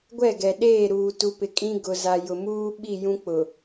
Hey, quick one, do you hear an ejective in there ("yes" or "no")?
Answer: yes